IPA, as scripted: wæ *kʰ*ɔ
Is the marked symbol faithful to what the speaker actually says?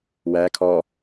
yes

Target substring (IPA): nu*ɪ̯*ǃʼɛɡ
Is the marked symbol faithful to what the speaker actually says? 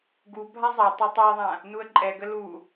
no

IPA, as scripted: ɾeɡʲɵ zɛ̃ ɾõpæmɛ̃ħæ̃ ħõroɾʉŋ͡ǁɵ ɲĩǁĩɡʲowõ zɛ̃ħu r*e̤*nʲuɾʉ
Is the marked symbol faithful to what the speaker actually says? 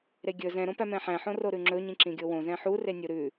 no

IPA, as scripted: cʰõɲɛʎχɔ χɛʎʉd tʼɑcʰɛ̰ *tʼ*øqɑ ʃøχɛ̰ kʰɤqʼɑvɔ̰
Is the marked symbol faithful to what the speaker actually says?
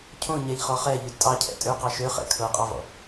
yes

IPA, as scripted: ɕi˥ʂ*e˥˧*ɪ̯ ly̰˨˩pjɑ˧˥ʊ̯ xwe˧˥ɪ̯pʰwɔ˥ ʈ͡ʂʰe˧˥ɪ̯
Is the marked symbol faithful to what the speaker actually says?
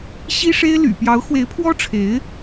no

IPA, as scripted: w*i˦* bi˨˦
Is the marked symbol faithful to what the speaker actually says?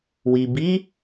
no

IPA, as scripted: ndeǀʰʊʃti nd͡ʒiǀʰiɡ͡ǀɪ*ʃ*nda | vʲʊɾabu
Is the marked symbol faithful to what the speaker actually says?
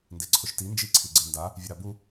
no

